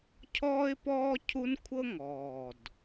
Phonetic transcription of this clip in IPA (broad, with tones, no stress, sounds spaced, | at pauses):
cʰ ɔː˥ ɪ̯ p ɔː˥ cʰ u˥ n kʷʰ ɤ˥ ŋ ɔː˨˩ d